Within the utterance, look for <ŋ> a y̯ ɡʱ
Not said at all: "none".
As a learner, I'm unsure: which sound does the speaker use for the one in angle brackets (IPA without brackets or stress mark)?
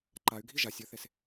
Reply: ǃ